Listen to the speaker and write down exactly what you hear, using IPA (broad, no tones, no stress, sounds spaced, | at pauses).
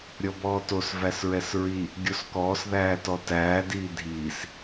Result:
ɾʲ ɔ b ɔː t o s v æ s ɹ ɛ s ɹ i | ɡʲ o s k ɔː s ð æː t ɔ t æː d iː dʱ iː s